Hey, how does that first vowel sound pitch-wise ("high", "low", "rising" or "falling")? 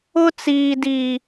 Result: high